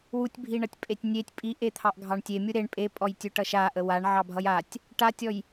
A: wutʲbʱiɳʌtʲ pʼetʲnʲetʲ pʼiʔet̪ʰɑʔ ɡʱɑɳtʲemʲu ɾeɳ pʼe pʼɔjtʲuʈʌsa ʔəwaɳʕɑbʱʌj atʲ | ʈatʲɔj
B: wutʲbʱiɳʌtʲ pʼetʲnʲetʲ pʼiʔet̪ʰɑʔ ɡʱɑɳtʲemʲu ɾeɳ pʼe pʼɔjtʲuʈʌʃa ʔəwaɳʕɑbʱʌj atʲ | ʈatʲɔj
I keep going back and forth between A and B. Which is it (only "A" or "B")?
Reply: B